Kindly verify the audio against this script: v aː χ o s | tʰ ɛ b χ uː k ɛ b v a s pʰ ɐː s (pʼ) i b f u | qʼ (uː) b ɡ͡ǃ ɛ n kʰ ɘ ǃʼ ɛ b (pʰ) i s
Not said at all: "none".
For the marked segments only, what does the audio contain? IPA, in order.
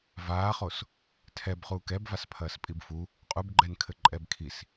pʼ, u, kʰ

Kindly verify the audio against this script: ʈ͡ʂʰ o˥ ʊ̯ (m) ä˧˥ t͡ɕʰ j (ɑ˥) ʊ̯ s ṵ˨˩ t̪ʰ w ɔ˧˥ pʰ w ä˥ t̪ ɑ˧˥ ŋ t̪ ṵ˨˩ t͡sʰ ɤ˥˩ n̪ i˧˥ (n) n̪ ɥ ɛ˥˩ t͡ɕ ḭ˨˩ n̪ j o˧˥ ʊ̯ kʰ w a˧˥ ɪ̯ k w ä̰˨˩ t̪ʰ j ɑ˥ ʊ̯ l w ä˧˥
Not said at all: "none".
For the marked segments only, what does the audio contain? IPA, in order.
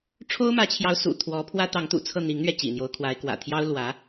m, ɑ˧˥, ŋ

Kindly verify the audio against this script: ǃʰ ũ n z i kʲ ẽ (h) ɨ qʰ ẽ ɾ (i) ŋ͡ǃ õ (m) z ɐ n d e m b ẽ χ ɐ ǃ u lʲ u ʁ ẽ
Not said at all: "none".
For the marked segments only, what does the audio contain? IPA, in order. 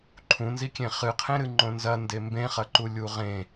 χ, ɨ, n

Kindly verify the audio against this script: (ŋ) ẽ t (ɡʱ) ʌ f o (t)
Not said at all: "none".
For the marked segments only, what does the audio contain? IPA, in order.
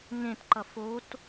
ŋ, ǃ, t

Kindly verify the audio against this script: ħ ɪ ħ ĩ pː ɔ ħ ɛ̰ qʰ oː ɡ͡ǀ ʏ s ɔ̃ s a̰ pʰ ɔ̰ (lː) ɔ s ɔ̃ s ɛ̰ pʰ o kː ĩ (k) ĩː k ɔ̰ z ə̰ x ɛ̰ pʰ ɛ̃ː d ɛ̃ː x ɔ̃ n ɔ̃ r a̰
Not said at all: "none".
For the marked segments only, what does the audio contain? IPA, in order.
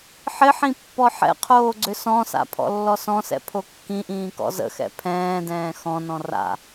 lː, ʔ

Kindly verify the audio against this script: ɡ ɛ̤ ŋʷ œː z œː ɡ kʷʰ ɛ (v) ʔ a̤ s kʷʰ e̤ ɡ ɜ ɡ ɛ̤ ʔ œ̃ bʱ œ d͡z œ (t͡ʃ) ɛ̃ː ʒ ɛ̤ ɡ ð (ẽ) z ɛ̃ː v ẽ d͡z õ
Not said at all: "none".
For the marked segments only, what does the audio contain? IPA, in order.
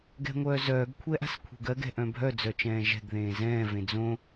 none, t͡ʃ, ẽː

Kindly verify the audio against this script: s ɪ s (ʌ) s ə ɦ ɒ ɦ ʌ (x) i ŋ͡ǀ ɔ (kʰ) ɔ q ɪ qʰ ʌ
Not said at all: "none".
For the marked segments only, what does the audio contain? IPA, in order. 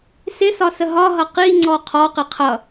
ɒ, q, qʰ

